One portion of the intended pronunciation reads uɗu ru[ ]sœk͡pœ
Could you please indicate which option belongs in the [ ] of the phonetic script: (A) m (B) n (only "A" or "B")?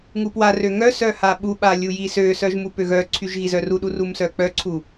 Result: A